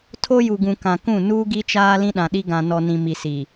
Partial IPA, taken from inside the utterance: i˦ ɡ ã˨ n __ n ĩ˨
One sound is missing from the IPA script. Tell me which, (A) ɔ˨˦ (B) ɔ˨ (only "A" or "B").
B